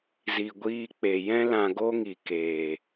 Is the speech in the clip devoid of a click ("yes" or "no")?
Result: yes